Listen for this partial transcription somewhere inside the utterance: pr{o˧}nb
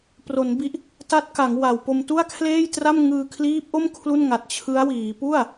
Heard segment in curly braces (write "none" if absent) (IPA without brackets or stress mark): o˩˦